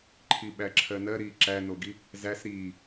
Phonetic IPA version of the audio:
ǃʰ i ɓ æ ǁʰ ɜ n ɜ ɾ iː ǁ æ n o ɡ i | z æ s ɾ iː

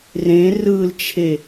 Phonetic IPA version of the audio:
r ẽ r ɯ l t͡ʃʰ e

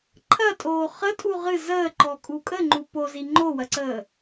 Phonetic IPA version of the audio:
ǃʰ ɐ tʼ oː χ ə tʼ u ʁ ɨ z əː ǃ ɔ kʼ u kʼ ə ŋ͡ǃ u p o z i ŋ͡ǃ o w ɐ ǀ əː

